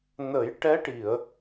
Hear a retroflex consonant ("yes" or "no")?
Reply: yes